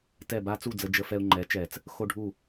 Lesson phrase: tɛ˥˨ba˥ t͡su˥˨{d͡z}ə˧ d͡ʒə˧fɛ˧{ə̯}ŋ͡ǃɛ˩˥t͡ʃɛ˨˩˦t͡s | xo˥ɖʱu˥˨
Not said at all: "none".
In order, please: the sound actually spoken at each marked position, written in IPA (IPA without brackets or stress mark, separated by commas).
d͡z, ʊ̯